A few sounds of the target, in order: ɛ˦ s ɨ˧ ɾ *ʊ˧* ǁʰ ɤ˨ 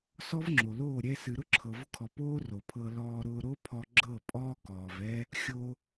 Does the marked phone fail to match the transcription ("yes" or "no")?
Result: yes